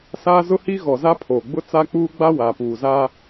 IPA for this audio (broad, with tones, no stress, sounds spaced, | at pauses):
s aː˦ z ʊ˦ h i˦ ɣ ɔ˨ z a˦ pʰ oː˨ ɡ͡b ʊ˦ t͡s a˦ k͡p uː˦ ɡ͡b a˦ w aː˨ p uː˨ z a˦